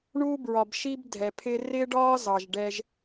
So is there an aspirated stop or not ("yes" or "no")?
yes